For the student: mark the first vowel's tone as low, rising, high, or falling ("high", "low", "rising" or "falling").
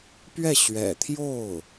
falling